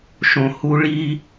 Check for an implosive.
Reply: absent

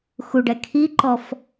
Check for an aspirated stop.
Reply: present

